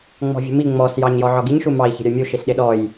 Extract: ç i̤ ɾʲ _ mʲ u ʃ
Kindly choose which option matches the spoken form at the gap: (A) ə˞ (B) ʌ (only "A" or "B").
A